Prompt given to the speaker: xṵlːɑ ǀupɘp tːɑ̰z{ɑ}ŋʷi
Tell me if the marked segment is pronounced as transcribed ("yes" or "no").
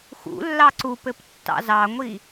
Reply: yes